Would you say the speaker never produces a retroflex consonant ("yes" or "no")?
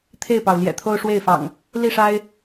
no